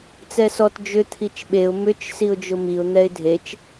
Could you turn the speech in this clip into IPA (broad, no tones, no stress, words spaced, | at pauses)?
t͡sɛsɔt d͡ʒʏ t̪ʰit͡ʃɓeʊ̯ mʏt͡ʃ siʊ̯d͡ʒʊmiʊ̯ n̪ɛɪ̯dʱet͡ʃ